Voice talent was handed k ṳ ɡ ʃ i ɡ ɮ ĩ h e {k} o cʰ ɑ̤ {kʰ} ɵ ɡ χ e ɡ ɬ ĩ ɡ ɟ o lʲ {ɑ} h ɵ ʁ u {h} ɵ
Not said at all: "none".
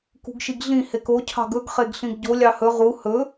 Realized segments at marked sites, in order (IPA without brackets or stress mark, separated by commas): k, ɡ, ɑ, h